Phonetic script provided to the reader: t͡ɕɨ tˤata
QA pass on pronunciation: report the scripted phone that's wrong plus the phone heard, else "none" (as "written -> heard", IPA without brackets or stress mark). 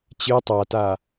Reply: none